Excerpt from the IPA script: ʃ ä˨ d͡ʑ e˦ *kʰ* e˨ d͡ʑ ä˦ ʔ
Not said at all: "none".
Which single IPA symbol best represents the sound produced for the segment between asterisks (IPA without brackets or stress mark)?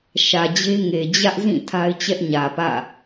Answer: ŋ